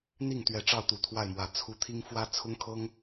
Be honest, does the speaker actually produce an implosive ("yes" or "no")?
no